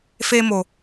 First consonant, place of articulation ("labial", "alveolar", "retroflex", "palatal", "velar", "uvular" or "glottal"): labial